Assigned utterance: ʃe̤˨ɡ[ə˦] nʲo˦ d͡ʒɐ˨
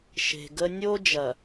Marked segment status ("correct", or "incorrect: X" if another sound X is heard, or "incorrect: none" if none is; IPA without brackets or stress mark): correct